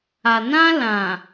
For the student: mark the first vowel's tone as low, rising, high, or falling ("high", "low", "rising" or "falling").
low